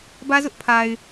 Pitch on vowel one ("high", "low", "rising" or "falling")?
high